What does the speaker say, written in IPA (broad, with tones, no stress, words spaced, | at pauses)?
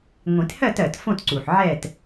ŋʷĩ˨˩˦thɜ˥˧t ɜ˨˩tfõ˥˧tǀu˨˩ħ ʕɛ˥˧t